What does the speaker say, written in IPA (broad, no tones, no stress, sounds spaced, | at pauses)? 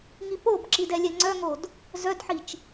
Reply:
ŋ i p o b ǁ i d ɛ lʲ ɛ ŋ͡ǀ œ ŋ o d | z œ d ħ i t͡ʃ